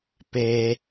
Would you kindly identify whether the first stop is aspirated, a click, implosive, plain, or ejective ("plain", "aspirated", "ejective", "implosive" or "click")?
plain